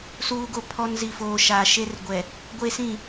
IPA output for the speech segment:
s uː˦ ɡ o˦ pʰ ɔ˦ n z i˨ f oː˨ ʃ aː˨ ʃ e˦ r ɡʷ ɛ˨ | ɡʷ e˦ s ĩ˦˨

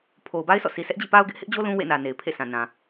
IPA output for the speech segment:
pʰ o˨ ʊ̯ b a˦ ɪ̯ sʰ ɔ̰˦˨ sʰ i˨ sʰ ɛ˦ ʔ d͡ʑ ḭ˦˨ p a˦ ʊ̯ ɡ ɪ˦ ʔ h ɪ˦ ʔ d͡ʑ o˦ l ũ˦ w ḛ˦˨ n ä˨ n e˨ ɪ̯ pʰ ḛ˦˨ s ã˨ n ã˨

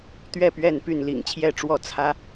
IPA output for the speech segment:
t̪ ɥ ɛ˥˨ p ɥ ɛ˥˨ n p y˥˨ n l ḭ˨˩ ŋ t͡ɕʰ j ɛ˥˨ ʈ͡ʂ w ɔ˥˨ t͡sʰ ä˦

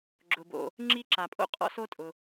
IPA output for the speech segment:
ɡ͡ǁ ʊ˩ b o̰˩ | ŋ͡ǁ i˥ ǁ a˩ pʼ o̰˥ qʼ ɔ̰˥ s o˥ tʼ ʊ˩

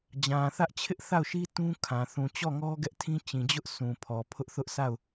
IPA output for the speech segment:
d͡ʑ ã˨ θ ä˦ ʔ t͡ɕʰ ɪ˦ ʔ θ a˦˨ ʊ̯ ʃ i˦ t ũ˦ kʰ ã˨ θ ũ˨ t͡ɕ ɔ˦˨ ŋ ɔ˦ ɡ ɛ˦ ʔ tʰ ĩ˦ t͡ɕ ĩ˨ d͡ʑ ʊ˦ ʔ s ũ˨ pʰ ɔ˨ pʰ ʊ˦ ʔ θ ʊ˦ ʔ s a˦˨ ʊ̯

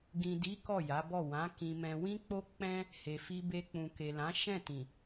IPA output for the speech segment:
ɡ ĩ˨ d i˨˦ k ɔ˦˨ j a˨˦ b ɔ˦˨ w ã˨˦ k ĩ˧ m ɛ̃˧ w ĩ˦ k͡p o˦ k͡p ɛ̃˦ | h e˨ f i˧ b e˧ k͡p ũ˨ k e˨ l ã˨˦ ʃ ɛ̃˦˨ t ĩ˨

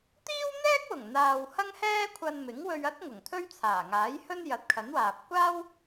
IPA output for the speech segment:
t̪ iː˥ w n̪ ɛː˥ k̚ w ʊ˨˩ ŋ n̪ aː˨ w h ɐ˥ ŋ h ɛː˥ kʷʰ ɐ˧ n m ɪ˨˥ ŋ w ɵ˧ ɥ ɐ˥ t̚ ŋ ʊ˨˩ ŋ t̪ʰ ɵ˥ ɥ t͡sʰ aː˨˩ ŋ aː˨˥ j h ɵ˥ n j ɐ˨˥ t̚ kʰ ɐ˨˥ n w aː˨ p̚ kʷ aː˥ w

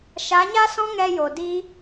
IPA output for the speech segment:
ʃ a˨˦ ɲ a˦ s ɔ̃˦ ŋ ɛ˧ j o˨ d i˦

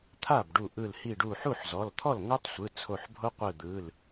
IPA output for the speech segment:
t̪ʰ a˥˩ b ɖ u˧˩ ʔ ɯ˧˩ l h i˧˩ ɖ u˧˩ ħ u˥˩ ħ z ɔ˩˧˩ l t̪ʰ ɔ˥˩ l ŋ ɤ˦˥ tˤ sʷ ɯ˩˧˩ t͡sʰ o˧˩ ħ bʱ o˦˥ qʷ ɯ˧˩ d̪ ɯ˩˧˩ l

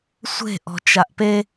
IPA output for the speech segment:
sʷ e̤ ʔ ɔ̤ t͡ʃ a ʔ p e

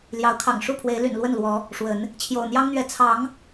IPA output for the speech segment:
l j ɑ˨˦ ʊ̯ kʰ ɑ̰˨˩ ŋ ʂ u˥˨ pʰ w e˨˦ ɪ̯ l y̰˨˩ n l w ə˥˨ n l w ɔ˨˦ | ʂ w ə˨˦ n | t͡ɕʰ j o̰˨˩ ʊ̯ n̪ j ɑ˦ ŋ n̪ ɥ ɛ˨˦ t͡sʰ ɑ˨˦ ŋ

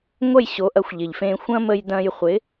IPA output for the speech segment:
ŋʷ ɐ˥˩ j ɕ o˩˥ ʔ ɐ˩˥ xʷ ʎ ɪ˩ ʎ f ẽː˧ xʷ ɐ̃˥ m ə˧ j d ɐ̃˧ j χʷ ɪ˩˥

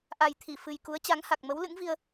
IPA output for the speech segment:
ʔ a˨˩ j t̪ʰ i˧˩ f ɨ˨˩ j k u˨˦ ə̯ t͡ɕ a˨˦ ŋ h a˨˩ k̚ m ə˨˦ w l ɨ̰˧˥ ŋ v i˧ ə̯

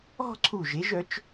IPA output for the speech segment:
ɔ̤˥˧ ǀʰ u˧˩ ʒ e˩˧ ʒ œ˩˧ t͡ʃ

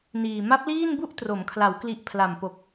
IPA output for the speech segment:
n iː˨˩ m a˦˥ p̚ l iː˥˩ n b u˥˩ ʔ t r o˩˦ m kʰ l a˩˦ w k l i˨˩ ʔ pʰ l a˨˩ m p o˨˩ k̚

